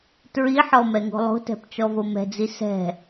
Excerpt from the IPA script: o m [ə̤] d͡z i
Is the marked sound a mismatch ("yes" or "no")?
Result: yes